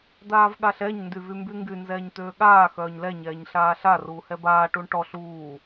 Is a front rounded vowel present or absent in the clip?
present